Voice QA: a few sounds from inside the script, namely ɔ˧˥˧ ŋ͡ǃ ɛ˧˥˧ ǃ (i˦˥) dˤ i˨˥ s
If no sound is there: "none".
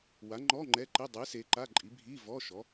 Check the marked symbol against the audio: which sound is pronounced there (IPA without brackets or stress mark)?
i˧˥˧